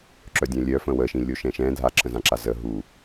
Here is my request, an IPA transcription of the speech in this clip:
ǁ œ dʲ œ̃ lʲ œ f ə̃ w ə ʃ ĩ lʲ o ʃ ɛ̃ ʃ ɛ̃ dʱ a ǁ ə̃ z ã ǁ a z ə ɦ u

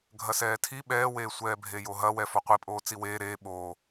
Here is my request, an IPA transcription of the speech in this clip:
ɡʱ ɐ s ɛː tʰ i ɓ ɛː w eː sʷ ɛː bʱ e j o ɦ ɐ w ɛ f ɔ qʷ i pʼ oː t͡s i w eː ɾ eː ɓ o

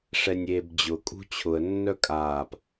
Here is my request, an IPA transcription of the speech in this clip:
ʂ ɛ nʲ eː b d͡ʑ ʊ kʼ ṳ t͡ɕʰ ʊ ə̯ nː œ kʼ aː p

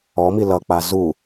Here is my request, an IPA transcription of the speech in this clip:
ɔ m i l ʌ k͡p a z u

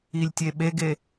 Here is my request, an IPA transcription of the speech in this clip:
i lʲ tʲ e ɓ e ɡ e

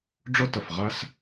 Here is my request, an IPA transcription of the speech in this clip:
ɖ͡ʐ ʊ˦ t ə˨ f ʁ æ˦ s

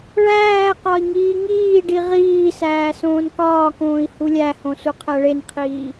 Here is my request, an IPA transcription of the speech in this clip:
ɭ æː q ɒ i̯ ŋ iː ŋ iː ɖ i ʁ iː s æː s õː n k ɒː k õː i̯ h u lʲ æ h õ s u qʰ æ ɭ e n qʰ iː

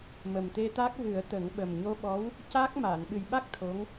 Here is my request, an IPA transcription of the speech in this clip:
m ə˨˩ m t̪ e˧ t̪ a˦˥ k̚ v ɨ˨˩˦ ə̯ t̪ ə˨˩˦ ŋ ɓ ə˨˩ m ɲ o˧ ɓ ɔ˧˥ w | c a˦˥ k̚ m aː˨˩˨ n ɓ ɨ˨˩ j ɓ a˦˥ k̚ t̪ʰ o˧˥ ŋ

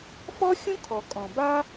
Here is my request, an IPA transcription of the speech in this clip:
f ɔ˦ xʲ ũ˦ kʰ ɔ˨ kʼ ɔ̃˨ b a˦

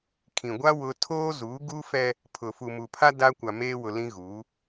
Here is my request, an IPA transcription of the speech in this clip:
kʰ ĩ˨ ɡʷ a˦ w ʊ˦ tʰ oː˦ z u˨˦ ɡ u˦ f ɛ˦ | pʰ ʊ˨ f u˨ m u˨ pʰ a˦ d a˦ kʷ a˨ m eː˦ w ʊ˨ l ĩ˦ ɣ uː˨˦

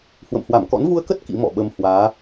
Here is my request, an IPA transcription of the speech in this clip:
h w ə̰˧˨ m h w a˧˩ m k ɔ̰˧˥ n v u˧ ə̯ k ə˦˥ t̚ k ḭ˧˥ m ɔ̰˧˨ ɓ ə˧ m h w aː˨˦

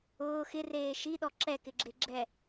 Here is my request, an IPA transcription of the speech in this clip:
ʊː x ɪ r eː ʃ i ɗ ɔ ǁ ɛ k ɪ ɡ͡ǁ e ɡ͡ǁ ɛ

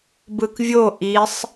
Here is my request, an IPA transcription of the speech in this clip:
b ɯ k vʲ o ʔ i sˤ

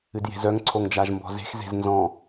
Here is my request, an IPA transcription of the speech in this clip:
ɨ d j e̤ z œ ŋ ǀʰ o ŋ d͡ʒ a ʒ m b ɔ̤ z e̤ x z e̤ z n z ɔ̃

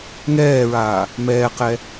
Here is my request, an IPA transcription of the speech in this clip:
ŋ ɛː ɹ aː | m ɛː q ɛ

